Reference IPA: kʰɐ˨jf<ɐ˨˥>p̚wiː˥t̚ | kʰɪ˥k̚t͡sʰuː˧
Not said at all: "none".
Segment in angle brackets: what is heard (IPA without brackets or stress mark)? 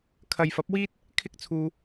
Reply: ɐ˨˥